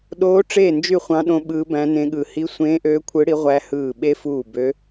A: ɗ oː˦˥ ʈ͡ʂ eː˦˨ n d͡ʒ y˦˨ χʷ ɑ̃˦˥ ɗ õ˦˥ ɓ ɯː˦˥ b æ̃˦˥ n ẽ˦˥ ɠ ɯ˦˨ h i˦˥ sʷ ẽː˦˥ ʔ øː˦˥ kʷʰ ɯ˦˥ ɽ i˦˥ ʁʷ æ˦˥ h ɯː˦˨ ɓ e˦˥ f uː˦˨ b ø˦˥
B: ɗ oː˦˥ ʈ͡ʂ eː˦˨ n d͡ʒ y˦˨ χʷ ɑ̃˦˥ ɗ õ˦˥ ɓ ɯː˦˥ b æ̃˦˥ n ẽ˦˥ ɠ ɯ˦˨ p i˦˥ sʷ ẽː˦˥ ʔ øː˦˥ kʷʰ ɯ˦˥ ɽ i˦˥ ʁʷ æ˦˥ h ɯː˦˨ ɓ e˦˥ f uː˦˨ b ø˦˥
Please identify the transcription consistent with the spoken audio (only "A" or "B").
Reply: A